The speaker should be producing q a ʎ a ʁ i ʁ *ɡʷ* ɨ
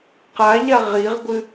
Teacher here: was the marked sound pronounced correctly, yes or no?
yes